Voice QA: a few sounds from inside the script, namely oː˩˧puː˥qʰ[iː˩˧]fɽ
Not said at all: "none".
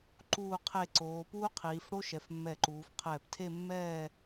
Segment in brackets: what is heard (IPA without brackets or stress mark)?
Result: iː˩˧